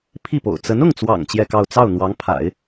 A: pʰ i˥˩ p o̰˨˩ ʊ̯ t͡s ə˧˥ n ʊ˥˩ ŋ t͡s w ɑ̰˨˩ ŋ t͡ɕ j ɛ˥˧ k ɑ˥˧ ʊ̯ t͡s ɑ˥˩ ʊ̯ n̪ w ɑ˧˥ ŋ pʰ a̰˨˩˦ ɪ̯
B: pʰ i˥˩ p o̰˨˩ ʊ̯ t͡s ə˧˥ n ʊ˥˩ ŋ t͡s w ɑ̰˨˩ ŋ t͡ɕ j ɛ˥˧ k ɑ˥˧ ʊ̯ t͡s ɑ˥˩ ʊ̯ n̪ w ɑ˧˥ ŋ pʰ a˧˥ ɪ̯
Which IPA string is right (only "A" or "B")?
A